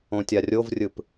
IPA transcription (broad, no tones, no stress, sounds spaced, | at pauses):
õ tʲ a rʲ o v rʲ ɯ p